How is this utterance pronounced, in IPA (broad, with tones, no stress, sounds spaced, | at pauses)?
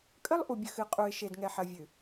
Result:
kʼ ə˦ lˠ ʔ u˨ bʲ ə˨ x ɨ˨ qʼ u˨ ɪ̯ ʃ e˨ d ŋ ɛ˨ ħ ɐ˨ vʲ ɨ˨